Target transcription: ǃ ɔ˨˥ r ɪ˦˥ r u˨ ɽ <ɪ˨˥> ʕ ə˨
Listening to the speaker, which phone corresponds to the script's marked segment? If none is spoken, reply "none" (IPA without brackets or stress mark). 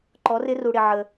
ɪ˨